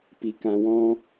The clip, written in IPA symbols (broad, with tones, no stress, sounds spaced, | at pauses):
p i˨ k ã˨ w ɔ̃˧